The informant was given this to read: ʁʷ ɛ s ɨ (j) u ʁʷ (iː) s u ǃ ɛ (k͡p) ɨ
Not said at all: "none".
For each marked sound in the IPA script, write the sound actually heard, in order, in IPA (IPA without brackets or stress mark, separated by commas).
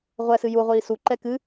j, iː, k